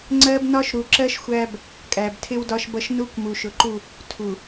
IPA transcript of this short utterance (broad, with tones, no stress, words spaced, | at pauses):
ŋ͡ǀɜ˦bnɒ˦ʃ ɾu˨ǁɜ˦ʃ xʷæ˦b | kʼæ˨btʰɪ˦wdɒ˦ʃbʌ˦ʃ nu˦kʷmu˨ʃʊ˨ǃu˦˨ | tʰu˨